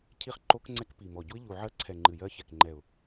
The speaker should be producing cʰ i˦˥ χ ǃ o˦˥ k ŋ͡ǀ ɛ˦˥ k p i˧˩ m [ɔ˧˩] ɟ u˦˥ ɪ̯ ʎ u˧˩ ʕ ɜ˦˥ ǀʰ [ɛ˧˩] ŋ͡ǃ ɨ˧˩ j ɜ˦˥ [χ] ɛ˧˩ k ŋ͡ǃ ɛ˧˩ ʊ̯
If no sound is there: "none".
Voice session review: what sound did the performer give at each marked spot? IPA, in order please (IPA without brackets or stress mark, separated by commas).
ɔ˧˩, ɛ˧˩, ç